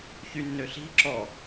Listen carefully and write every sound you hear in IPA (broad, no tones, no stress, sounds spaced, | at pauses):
ç y nː ø ɬ i̤ ǁ ɔ